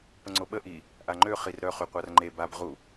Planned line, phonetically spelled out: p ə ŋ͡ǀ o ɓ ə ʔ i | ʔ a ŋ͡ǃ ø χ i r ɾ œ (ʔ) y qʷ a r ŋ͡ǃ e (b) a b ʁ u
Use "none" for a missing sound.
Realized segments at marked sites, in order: χ, b

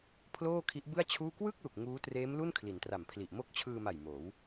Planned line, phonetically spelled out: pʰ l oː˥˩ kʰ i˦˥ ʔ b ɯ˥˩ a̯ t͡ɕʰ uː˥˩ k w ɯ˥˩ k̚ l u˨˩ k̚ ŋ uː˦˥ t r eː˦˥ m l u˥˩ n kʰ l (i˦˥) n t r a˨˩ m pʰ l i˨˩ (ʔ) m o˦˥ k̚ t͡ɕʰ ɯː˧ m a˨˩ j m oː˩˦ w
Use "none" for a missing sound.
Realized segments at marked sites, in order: i˩˦, ʔ

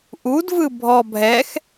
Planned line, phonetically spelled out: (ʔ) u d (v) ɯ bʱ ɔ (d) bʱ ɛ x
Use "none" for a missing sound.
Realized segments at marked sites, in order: ʔ, v, none

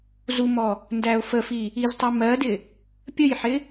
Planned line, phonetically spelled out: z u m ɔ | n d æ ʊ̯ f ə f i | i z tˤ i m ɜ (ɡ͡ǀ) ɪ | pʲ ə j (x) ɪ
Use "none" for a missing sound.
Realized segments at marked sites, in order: d, ħ

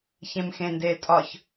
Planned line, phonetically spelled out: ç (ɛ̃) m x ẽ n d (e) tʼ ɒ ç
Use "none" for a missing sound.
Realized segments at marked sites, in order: ẽ, e

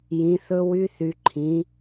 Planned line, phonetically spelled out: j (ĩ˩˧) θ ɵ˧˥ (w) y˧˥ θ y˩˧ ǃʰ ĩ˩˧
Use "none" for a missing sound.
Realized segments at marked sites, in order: ĩ˩˧, w

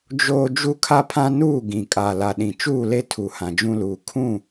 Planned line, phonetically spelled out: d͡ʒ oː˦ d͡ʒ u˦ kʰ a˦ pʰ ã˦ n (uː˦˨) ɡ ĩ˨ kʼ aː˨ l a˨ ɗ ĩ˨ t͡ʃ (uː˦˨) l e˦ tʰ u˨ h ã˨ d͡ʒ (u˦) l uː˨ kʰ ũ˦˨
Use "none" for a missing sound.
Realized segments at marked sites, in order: uː˦˨, uː˦˨, ũ˦

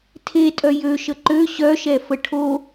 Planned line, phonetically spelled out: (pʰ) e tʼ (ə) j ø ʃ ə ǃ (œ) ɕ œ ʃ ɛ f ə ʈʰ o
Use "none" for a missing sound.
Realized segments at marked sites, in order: tʰ, œ, ø

